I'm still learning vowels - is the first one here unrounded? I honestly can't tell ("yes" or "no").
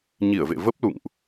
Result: yes